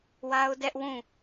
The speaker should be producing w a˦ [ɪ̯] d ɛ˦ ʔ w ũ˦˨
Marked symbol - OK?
no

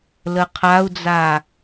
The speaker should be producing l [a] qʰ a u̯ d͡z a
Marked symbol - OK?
no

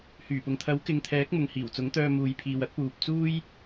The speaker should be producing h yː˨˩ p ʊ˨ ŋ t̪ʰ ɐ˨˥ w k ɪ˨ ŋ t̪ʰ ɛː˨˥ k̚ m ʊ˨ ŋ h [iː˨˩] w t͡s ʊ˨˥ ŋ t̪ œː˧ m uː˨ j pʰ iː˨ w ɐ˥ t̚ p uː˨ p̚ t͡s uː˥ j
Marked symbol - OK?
yes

